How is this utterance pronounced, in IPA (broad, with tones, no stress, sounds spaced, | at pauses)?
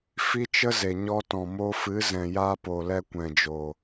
f i˦ t͡ʃ ə˦ z e˨ ɲ ɔ˧ t ɔ̃˨ m o˧ f ɨ˨˦ z ɛ̃˨ j a˧ p o˨ l ɛ˧ kʷ ɛ̃˨ d͡ʒ o˨